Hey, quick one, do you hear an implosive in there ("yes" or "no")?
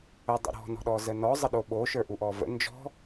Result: yes